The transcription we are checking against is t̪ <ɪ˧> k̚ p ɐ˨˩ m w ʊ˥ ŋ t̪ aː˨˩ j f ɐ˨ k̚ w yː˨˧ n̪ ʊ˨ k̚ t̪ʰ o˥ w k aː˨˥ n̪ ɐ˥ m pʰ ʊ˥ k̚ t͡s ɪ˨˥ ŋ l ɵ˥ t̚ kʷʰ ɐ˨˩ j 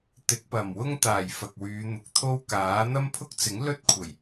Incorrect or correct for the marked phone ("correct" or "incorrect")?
incorrect